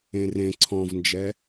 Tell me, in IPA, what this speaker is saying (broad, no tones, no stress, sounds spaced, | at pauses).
ẽ r ẽ ǀʰ ɔ̃ v n d͡ʒ ɛ